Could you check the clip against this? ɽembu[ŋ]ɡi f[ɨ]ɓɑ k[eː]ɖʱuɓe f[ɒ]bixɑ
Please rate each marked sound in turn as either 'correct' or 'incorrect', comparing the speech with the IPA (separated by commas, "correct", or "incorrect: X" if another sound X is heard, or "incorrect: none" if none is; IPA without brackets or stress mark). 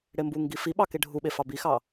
correct, incorrect: i, incorrect: e, incorrect: ɑ